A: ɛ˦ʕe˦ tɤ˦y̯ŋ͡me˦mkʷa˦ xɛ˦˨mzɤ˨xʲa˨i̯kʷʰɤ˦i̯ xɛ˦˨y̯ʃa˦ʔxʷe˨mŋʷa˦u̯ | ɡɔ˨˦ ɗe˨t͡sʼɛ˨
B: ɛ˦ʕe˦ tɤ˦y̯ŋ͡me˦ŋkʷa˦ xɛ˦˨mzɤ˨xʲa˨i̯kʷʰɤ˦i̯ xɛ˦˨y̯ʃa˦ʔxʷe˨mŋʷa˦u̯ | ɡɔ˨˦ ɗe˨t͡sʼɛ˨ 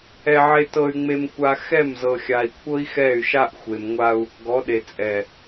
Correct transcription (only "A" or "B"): A